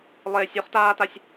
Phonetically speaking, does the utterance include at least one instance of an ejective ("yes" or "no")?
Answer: no